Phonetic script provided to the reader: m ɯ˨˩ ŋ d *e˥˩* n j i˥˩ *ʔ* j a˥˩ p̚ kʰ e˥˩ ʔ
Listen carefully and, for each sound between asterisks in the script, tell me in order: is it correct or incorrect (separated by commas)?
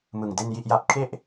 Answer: correct, correct